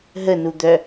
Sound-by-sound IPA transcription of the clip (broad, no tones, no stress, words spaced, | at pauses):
ɦənud̪œ